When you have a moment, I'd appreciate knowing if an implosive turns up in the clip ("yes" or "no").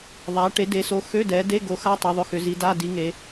no